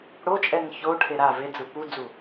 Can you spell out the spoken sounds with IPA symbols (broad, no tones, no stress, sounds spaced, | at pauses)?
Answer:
ɽ o t͡ʃʼ ɛ ŋ ç o ʈʰ e ɾ a v e d͡z ɯ p u d͡z u